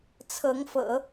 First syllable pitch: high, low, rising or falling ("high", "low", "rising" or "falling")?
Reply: rising